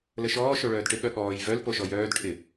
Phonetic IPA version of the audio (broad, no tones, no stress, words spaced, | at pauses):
ləʃɔː ʃoɭœːdʈɪ ɠœɠɔːj vœl poʃɔjœːd ʈʰɪ